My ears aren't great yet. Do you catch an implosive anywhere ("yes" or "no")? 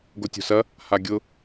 no